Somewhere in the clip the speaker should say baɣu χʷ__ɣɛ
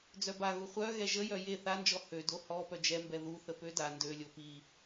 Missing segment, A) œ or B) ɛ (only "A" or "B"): A